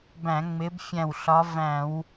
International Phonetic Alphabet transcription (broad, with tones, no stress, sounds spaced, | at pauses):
b æ̃˧˩˧ ŋ͡m ɪ˨˦ b fʲ æ̃˧˩ w ɬ ɒ˨˦ v æ̃˧˩˧ w